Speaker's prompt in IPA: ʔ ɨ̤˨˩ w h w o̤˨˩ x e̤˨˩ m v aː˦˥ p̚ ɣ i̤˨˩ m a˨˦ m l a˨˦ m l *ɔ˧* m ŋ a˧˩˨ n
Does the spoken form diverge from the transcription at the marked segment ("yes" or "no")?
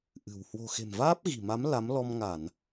no